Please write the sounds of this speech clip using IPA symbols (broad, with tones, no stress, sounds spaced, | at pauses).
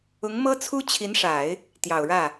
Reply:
ʊ˧˥ ŋ m ɤ˥ t͡sʰ u˥ t͡ɕʰ i˧˥ n ʂ a˨˩˦ ɪ̯ | t̪ j ɑ˨˩ ʊ̯ ɻ ä˥˩